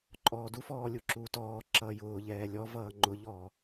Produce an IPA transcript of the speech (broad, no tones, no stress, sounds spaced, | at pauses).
ǃʼ ɔː d u f ɔː lʲ u ǁ uː t ɔː ǁ ʌː j ʊː ʎ ɛː lʲ ɔ v ʌː ŋ͡ǃ ʊ ʎ ɔː